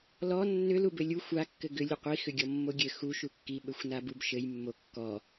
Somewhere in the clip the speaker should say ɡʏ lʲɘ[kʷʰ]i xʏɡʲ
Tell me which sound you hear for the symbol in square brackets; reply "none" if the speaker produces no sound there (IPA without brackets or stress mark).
qʷ